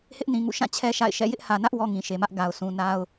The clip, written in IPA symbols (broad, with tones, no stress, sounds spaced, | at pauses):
h ɪ˦ ʔ n ĩ˨ ŋ ṵ˦˨ ʃ ã˦˨ t͡ɕʰ ɛ˦ ʃ a̰˦˨ ɪ̯ ʃ ɛ̰˦˨ j ɪ˦ ʔ h ä˨ n ä˦ ʔ w ɔ˦ ŋ ĩ˨ ʃ e˨ m ä˦ ʔ ɡ a˨ ʊ̯ s ũ˨ n a˦ ʊ̯